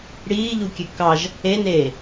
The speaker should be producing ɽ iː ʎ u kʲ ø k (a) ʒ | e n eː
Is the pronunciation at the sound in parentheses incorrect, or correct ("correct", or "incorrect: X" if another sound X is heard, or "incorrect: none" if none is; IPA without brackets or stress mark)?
incorrect: ɑ